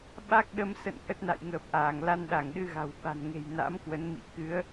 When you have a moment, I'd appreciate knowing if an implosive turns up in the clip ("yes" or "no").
yes